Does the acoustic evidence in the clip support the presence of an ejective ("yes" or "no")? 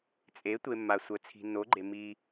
yes